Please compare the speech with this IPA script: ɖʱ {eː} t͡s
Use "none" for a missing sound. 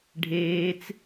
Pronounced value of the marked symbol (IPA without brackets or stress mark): eː